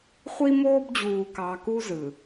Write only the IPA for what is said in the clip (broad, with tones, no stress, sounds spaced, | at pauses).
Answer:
χʷ i˦ m oː˦ b d͡ʑ uː˨ k ɑ˨ k u˦ z ɯ˨